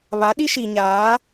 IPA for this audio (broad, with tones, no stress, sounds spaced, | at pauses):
β a˨˦ ɗ i˦ ʃ i˨ ɲ aː˨˦